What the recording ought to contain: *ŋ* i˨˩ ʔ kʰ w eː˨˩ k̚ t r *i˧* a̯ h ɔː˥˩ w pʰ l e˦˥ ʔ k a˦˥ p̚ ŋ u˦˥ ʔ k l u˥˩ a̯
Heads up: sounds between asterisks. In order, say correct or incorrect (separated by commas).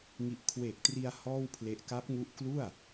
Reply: correct, correct